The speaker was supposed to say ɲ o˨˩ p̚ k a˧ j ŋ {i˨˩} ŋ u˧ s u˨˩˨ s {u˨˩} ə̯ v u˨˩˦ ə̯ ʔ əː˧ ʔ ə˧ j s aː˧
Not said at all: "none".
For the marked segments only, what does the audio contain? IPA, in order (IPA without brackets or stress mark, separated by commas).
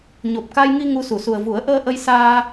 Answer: i˧, u˨˩